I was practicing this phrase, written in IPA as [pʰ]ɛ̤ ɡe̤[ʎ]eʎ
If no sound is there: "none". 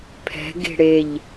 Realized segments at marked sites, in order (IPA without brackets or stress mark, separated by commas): pʰ, ɽ